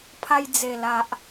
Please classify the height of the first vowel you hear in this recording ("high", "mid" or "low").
low